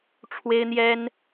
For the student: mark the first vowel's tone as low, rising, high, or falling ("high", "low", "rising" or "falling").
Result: high